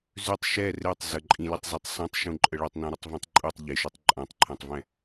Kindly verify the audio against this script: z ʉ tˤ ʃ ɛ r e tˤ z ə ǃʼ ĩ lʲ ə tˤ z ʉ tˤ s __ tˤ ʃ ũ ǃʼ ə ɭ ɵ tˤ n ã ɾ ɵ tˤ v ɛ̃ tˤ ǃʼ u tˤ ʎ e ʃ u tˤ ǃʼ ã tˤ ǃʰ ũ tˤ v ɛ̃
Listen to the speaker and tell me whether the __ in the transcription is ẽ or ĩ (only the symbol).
ẽ